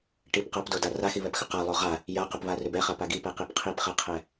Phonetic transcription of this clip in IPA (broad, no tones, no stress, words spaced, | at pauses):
ʈip qapdoda raxiβɛpxʏ qalˠo ʁa | jaqʏpβarʏb ɛχapa ɡipɛqib qʰipχɛqʰɛ